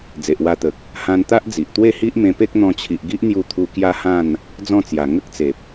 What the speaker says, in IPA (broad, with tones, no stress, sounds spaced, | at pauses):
d͡z e˨ ʔ w a˧ t̪ ə˨ k̚ | h ã˧ n t̪ a˦ ʔ d͡z i˨ ʔ t̪ w e˥˧ h i˦ ʔ m ẽ˧ p e˦ k̚ n̪ ɔ̃˧ t͡ɕʰ i˨ ʔ ɡ i˦ ʔ n̪ j u˧ t̪ʰ u˧ k j a˦ h ã˥˧ n | d͡z ɔ̃˥˧ t͡s j a˨˩ ŋ ə˦ k̚ t͡s e˨ p̚